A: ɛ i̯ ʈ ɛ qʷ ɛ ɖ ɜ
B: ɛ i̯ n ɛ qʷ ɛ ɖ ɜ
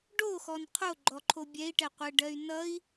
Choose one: A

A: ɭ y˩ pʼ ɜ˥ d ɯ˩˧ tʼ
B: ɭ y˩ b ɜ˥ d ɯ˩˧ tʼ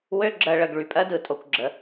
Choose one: A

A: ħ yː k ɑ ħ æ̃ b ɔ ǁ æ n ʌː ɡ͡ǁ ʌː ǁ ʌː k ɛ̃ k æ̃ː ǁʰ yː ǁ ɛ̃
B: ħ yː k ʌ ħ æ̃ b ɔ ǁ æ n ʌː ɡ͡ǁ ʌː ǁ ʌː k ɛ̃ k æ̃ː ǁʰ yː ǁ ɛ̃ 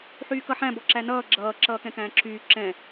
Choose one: B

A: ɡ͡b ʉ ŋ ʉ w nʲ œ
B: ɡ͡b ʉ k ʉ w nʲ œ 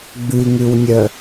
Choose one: A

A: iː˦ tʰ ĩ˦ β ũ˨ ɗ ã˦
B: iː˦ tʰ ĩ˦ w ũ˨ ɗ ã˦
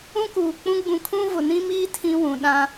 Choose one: B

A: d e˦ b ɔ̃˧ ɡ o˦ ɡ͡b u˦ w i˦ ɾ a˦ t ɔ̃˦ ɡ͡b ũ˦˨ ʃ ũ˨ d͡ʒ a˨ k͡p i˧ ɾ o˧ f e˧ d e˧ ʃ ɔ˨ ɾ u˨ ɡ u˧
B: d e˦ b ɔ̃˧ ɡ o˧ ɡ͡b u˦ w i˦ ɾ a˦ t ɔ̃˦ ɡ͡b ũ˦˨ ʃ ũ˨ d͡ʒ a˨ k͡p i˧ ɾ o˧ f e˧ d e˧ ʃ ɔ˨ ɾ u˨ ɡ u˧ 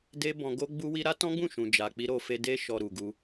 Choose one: A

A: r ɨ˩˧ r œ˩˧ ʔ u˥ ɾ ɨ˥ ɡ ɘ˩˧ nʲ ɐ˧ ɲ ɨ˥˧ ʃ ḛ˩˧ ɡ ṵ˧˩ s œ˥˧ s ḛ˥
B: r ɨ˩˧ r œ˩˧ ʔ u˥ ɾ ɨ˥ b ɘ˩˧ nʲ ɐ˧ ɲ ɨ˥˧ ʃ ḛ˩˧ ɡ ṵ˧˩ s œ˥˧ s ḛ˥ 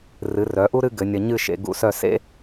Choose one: A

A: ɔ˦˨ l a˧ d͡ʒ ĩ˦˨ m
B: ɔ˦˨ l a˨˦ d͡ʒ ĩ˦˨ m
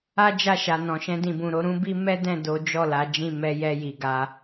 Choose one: B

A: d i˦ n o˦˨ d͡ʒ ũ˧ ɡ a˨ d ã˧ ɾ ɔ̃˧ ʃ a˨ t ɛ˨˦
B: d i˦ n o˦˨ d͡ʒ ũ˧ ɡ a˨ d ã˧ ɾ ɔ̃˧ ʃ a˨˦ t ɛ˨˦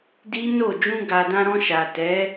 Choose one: A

